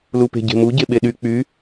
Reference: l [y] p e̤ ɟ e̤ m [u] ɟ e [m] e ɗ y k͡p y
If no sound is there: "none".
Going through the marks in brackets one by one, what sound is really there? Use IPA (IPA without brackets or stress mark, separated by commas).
u, u, ɓ